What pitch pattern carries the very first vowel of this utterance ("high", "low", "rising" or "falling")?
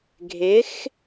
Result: rising